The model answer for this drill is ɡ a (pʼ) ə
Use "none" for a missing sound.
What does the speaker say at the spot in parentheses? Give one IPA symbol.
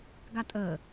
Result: tʼ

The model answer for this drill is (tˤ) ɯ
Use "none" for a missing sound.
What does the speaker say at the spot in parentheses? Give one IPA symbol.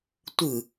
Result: tʷ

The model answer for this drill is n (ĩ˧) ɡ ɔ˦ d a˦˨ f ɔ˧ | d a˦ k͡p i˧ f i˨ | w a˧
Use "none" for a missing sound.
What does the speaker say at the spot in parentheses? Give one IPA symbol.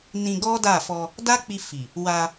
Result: ĩ˧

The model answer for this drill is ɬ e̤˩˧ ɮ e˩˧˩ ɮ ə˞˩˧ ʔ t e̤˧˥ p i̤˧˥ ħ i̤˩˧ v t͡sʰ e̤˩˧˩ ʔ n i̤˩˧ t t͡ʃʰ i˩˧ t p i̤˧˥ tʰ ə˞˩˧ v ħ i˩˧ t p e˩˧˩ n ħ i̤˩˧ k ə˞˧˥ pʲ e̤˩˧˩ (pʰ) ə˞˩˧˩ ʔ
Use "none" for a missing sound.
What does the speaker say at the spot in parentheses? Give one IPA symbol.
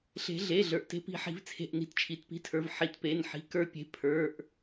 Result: pʰ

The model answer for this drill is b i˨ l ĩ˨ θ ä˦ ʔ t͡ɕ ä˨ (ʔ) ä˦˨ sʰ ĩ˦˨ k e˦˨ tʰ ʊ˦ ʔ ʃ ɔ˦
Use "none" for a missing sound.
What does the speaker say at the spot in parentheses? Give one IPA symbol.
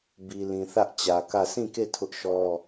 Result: k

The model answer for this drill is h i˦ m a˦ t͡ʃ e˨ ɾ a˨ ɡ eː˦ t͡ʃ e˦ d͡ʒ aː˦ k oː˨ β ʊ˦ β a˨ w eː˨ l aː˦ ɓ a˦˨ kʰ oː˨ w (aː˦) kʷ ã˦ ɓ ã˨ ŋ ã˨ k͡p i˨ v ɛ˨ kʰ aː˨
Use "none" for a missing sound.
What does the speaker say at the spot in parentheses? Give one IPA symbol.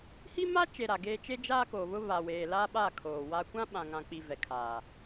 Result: a˦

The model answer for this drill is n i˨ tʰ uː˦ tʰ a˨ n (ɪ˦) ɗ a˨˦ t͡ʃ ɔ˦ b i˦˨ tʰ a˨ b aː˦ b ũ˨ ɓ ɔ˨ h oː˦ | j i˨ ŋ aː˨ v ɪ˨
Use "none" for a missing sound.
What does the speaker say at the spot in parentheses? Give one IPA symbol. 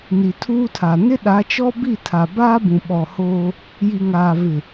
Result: ɪ˦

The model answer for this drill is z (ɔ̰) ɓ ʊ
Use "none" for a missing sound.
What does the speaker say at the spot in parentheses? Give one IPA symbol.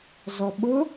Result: ɔ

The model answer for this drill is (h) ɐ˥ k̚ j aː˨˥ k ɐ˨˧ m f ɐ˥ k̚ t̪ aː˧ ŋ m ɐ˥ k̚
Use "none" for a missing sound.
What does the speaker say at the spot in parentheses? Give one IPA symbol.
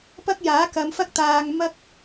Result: p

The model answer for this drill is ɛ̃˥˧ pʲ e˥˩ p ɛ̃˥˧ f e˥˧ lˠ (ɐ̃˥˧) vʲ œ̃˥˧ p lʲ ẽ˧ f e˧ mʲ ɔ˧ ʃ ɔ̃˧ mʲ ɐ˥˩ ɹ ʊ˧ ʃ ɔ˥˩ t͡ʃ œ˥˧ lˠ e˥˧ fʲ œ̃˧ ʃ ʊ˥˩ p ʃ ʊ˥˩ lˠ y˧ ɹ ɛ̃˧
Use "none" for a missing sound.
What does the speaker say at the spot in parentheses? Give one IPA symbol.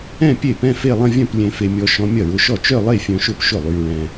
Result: ɐ̃˥˧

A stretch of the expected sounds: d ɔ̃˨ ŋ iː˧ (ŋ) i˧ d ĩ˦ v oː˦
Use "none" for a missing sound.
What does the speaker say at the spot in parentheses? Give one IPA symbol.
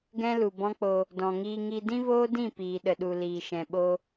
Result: ŋ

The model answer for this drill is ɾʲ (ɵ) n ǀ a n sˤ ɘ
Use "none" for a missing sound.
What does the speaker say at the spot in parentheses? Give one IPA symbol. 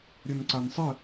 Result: ɵ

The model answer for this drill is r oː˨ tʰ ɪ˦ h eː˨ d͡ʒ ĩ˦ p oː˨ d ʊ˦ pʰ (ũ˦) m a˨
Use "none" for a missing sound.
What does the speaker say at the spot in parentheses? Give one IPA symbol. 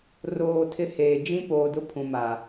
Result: ũ˨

